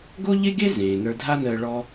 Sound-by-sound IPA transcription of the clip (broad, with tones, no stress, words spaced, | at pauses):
ɡo˥ʎe˥ɡe˥ zẽː˩ nə˞˧dʱa˥nəː˧ ɭɔ˥